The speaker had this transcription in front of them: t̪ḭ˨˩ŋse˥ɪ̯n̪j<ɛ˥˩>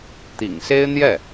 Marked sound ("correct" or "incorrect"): correct